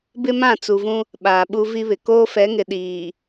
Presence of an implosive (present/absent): present